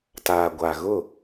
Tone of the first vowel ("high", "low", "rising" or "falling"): low